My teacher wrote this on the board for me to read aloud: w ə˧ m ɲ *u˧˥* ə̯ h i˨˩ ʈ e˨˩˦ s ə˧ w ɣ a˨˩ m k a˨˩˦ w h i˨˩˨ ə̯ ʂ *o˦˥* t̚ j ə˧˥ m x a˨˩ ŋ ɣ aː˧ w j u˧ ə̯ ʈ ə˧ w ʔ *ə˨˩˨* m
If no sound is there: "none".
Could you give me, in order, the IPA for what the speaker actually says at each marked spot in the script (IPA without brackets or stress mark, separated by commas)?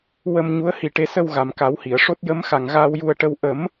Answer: u˧˥, o˦˥, ə˨˩˦